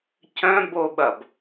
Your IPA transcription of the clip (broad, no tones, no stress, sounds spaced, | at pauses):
c œ̃ b o ɓ ɐ b